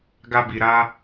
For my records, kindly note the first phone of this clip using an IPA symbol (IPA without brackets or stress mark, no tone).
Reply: ɡ